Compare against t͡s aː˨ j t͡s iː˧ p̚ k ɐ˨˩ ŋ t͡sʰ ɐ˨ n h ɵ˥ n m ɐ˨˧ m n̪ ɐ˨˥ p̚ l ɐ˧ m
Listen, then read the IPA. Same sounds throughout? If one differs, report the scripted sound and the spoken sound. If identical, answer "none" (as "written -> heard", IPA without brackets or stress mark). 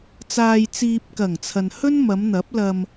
iː˧ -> iː˨